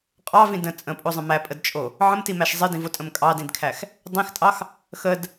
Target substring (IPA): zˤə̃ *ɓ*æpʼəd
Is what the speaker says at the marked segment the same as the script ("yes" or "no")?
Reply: no